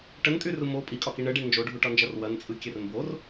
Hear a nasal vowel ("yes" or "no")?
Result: no